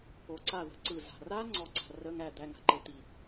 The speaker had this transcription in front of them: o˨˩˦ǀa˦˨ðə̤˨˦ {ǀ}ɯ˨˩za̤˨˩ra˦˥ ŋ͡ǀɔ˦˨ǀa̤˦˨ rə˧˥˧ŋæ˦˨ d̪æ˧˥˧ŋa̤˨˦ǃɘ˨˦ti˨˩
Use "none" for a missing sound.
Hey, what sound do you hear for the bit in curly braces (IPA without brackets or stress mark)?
ǀ